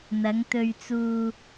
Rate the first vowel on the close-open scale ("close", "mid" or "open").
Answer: open